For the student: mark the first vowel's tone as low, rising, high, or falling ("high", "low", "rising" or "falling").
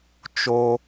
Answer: low